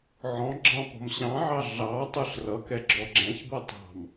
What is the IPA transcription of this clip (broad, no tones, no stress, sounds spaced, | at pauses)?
ʕ ɔ̃ ɡ͡ǁ ɑ̃ p ɔ̤ m ɕ ɑ̃ ʕ ɑ ɮ ɑ tˤ ə˞ ɬ r ʌ k ɛ ɡ͡ǁ ɔ ɡ͡ǁ æ̃ ç b ʌ tˤ ɑ̤ m